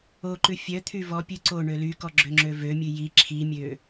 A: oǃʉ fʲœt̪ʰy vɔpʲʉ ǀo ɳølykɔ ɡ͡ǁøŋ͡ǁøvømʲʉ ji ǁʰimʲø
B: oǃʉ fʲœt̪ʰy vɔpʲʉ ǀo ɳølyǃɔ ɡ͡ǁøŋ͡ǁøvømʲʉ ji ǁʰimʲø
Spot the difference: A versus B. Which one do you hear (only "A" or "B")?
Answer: A